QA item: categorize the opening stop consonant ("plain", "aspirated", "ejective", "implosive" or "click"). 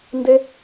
plain